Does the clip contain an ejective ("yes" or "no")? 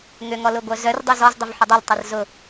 no